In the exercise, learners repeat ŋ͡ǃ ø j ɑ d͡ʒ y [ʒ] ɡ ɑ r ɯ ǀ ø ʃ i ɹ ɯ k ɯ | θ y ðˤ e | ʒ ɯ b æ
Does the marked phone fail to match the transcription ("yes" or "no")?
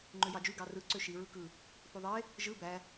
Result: yes